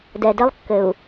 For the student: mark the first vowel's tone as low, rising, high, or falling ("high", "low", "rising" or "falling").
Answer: low